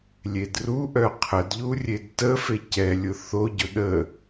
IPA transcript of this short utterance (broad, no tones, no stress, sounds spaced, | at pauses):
lʲ e d r u ʔ œ qʰ ə d ʎ u rʲ e d t ə f e c ɛ lʲ ʊ θ o ɟ ʊ ɗ ə